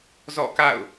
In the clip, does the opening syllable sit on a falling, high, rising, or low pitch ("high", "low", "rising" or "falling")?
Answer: falling